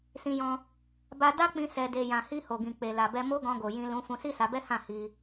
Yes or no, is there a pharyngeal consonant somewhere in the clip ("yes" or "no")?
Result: no